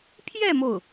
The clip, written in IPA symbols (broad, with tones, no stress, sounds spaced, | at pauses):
pʰ j ɛ˥˧ m o˥˩ ʊ̯